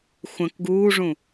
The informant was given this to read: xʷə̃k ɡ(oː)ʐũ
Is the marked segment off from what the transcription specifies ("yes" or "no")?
yes